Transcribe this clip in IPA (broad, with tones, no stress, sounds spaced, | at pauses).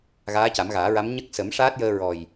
ɣ aː˧˥ c a˨˩˦ m ɣ aː˨˩˦ ɹ a˧˥ m ɲ ə˦˥ k̚ s ə˨˩˦ m ʂ aː˦˥ t̚ j əː˧ ɹ ɔ˨˩ j